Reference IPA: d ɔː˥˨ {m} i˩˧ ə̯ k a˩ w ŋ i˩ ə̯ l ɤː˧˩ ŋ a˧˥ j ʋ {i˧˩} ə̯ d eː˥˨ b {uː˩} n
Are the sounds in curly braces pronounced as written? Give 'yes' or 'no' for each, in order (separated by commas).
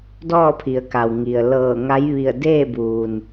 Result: no, yes, yes